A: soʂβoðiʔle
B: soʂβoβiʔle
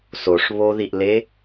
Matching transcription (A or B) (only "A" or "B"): A